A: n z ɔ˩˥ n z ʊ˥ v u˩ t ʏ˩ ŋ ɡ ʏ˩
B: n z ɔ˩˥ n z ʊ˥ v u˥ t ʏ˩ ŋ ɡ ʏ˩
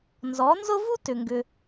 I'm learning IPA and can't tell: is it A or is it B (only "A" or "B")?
B